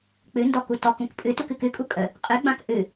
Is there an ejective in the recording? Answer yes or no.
yes